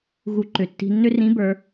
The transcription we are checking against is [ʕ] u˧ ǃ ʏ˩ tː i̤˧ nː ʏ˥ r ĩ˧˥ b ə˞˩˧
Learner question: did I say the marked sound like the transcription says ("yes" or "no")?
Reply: no